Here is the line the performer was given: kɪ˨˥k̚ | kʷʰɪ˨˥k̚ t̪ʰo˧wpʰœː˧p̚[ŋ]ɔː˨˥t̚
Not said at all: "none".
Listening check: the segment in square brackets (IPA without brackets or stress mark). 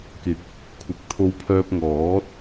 ŋ